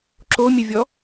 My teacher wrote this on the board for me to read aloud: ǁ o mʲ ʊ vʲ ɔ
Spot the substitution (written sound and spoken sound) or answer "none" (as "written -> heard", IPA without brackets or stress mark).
ʊ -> ə